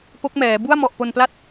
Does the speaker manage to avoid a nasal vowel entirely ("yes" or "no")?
yes